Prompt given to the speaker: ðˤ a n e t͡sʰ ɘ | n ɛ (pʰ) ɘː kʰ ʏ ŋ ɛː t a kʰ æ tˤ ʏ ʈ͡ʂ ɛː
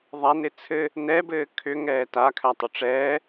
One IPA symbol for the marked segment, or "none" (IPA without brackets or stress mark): b